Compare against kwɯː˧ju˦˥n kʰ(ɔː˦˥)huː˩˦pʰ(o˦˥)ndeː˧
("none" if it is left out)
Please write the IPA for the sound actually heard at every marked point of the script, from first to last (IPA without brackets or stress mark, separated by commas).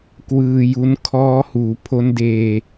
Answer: ɔː˦˥, o˦˥